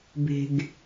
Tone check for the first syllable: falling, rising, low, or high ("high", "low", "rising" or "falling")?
low